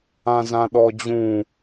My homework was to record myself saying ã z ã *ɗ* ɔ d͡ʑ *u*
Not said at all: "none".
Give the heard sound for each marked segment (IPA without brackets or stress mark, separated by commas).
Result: ɗ, ũ